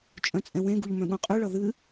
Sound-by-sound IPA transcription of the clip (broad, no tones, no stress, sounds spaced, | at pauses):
t͡ʃʼ œ̃ t͡sʼ ɛ̃ w ẽ ɡ u ʎ m œ̃ ɠ ũ qʼ ʉ ɭ ʌ ð ɨ